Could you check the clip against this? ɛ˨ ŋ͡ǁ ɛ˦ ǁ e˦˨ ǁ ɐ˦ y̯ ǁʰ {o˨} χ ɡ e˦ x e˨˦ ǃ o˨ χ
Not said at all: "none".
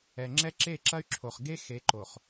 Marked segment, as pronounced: o˨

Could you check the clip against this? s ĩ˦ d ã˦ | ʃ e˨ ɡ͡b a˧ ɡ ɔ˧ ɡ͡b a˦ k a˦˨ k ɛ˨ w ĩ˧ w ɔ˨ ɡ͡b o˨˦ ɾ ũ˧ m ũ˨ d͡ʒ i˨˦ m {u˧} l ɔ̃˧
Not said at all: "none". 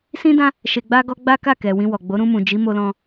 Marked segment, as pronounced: o˧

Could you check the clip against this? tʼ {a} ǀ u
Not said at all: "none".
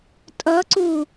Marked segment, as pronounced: ʌ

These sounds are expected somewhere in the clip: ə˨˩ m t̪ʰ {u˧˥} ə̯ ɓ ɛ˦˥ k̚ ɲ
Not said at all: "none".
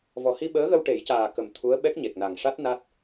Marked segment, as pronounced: u˧˥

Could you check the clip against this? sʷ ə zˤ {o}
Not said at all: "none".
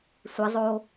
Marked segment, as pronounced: o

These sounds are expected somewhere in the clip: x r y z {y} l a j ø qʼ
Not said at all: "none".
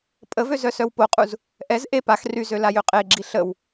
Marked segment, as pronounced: ø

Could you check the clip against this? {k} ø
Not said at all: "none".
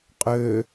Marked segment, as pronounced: qʼ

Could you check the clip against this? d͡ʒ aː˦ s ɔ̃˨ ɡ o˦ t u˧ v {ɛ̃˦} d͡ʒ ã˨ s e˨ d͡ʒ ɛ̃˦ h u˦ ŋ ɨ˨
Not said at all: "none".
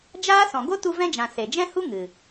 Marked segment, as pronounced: ɛ̃˦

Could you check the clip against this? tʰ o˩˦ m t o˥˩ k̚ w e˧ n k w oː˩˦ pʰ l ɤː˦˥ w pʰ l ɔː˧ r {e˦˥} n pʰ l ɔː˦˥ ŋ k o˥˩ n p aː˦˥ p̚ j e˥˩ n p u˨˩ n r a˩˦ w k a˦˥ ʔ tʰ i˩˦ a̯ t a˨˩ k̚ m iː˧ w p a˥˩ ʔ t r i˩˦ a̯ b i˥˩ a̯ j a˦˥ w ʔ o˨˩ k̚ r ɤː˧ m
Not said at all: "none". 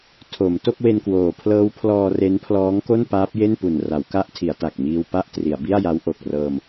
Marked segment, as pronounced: e˦˥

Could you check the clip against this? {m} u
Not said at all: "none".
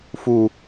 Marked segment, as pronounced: f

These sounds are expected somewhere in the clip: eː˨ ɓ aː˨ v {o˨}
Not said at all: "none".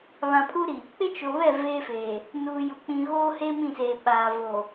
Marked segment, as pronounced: o˨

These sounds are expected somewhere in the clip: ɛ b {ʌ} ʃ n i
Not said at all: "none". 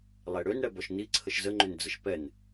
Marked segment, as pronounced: ɔ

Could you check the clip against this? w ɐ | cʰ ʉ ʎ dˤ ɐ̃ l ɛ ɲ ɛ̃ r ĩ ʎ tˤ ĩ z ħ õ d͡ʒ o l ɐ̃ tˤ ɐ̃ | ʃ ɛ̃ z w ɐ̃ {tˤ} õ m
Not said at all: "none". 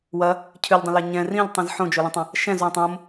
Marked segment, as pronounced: tˤ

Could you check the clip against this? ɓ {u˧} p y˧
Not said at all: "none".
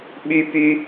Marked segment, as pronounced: y˧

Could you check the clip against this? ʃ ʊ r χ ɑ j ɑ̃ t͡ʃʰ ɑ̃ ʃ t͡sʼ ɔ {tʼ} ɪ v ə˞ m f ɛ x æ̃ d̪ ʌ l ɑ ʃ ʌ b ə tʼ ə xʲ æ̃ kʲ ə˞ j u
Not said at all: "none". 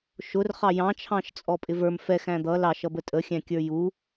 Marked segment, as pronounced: pʼ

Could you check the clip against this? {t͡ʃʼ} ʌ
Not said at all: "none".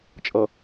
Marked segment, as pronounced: t͡ʃʼ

